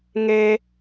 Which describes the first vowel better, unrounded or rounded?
unrounded